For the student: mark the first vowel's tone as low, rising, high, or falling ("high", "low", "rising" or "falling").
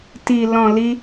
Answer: low